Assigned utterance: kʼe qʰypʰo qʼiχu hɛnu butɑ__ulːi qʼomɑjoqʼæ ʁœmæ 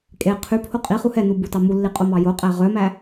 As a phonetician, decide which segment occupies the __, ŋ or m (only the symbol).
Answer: m